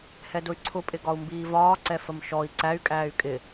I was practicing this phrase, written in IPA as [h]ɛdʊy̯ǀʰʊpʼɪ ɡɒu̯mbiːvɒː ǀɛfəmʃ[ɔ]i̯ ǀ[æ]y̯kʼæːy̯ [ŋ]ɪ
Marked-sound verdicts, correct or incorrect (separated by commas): correct, correct, correct, incorrect